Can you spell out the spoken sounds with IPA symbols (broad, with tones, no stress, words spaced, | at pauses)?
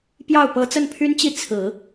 pjɑ˥˩ʊ̯ pɤ˧˥t͡sə˥˩npʰy˥nt͡ɕi˥˩ t͡sʰɹ̩˨˩˦